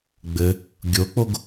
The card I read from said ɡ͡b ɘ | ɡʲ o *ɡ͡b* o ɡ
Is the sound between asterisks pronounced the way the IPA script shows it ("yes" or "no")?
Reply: no